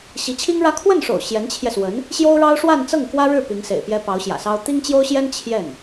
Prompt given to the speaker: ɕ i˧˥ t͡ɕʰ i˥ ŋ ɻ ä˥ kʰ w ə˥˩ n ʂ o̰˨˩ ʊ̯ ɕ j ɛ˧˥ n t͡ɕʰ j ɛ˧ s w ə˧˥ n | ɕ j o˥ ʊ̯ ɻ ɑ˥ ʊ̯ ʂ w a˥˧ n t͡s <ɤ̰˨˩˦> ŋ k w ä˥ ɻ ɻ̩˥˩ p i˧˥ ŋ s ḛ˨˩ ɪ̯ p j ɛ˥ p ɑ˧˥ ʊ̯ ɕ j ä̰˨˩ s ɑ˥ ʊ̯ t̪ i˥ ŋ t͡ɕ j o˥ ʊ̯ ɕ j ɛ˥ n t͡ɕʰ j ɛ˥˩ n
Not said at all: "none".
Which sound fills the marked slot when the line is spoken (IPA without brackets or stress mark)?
ɤ˥˩